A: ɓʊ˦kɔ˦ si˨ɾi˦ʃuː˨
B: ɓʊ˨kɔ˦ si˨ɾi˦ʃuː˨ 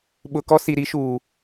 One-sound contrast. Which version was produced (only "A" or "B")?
B